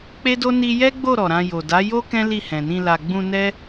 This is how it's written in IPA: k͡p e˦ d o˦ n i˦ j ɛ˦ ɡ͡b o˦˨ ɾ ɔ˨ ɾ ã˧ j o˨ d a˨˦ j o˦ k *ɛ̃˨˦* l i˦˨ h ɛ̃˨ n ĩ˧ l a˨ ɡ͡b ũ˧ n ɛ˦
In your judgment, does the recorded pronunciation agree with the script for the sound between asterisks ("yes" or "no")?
no